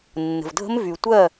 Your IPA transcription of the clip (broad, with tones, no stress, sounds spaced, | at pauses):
nː ə̤˨ v dʱ ə̤˦ m v y˨ tʷ ɜ˦˨